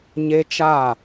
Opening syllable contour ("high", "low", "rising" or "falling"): high